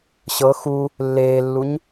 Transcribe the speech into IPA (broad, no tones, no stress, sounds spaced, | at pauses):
ɕ ɤ x u | lː eː lː u ɲ